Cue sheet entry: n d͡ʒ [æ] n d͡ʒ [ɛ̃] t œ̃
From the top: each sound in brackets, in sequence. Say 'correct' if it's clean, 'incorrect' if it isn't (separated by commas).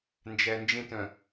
correct, incorrect